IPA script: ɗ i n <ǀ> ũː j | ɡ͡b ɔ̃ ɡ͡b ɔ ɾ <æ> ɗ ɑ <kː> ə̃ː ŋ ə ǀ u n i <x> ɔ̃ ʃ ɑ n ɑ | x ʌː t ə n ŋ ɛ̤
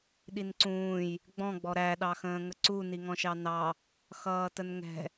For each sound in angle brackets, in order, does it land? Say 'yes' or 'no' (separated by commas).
yes, yes, no, no